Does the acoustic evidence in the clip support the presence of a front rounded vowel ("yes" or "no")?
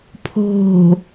no